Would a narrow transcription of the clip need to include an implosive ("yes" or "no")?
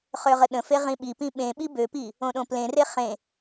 yes